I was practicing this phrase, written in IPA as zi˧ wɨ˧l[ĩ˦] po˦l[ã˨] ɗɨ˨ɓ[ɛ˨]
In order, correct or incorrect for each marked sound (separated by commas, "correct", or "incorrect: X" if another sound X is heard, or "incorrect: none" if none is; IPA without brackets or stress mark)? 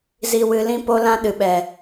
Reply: correct, incorrect: ã˦, correct